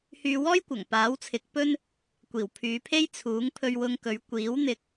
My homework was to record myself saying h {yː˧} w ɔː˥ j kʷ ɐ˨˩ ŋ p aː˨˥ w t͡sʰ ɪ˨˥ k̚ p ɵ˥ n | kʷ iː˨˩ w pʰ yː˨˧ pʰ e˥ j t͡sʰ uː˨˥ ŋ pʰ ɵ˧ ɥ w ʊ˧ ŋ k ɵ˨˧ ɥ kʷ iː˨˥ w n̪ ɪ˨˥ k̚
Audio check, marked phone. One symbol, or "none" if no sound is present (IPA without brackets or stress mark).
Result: yː˧